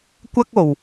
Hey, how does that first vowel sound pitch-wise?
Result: high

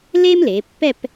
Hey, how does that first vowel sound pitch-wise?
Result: high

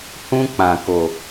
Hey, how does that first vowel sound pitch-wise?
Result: high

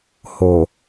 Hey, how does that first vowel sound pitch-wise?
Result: low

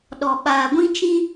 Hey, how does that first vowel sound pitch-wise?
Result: low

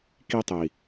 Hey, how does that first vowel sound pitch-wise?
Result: high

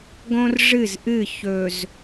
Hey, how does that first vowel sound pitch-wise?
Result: high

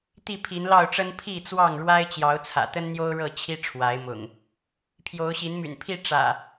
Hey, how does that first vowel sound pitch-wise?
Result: falling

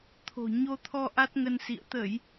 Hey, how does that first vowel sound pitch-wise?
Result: low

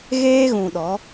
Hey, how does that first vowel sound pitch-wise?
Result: high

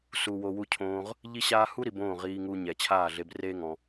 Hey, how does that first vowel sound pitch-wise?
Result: low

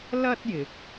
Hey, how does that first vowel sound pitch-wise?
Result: high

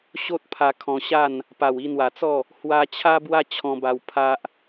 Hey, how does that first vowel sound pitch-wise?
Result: high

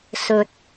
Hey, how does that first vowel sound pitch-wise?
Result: low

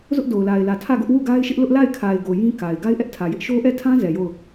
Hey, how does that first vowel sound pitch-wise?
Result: high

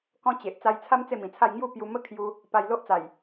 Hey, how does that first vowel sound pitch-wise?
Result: high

